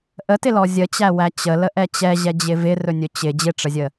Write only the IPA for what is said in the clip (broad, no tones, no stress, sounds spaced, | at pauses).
ʔ ə t ɪ l ɔ zʲ ə t͡ɕ æ w æ t͡ɕ ə l ə ʔ ɛ t͡ɕ ɛ ʑ ɛ d͡ʑ ɪ v ɪ r ɵ nʲ ɵ t͡ɕ ɪ d͡ʑ ɪ ʈ͡ʂ ə zʲ ə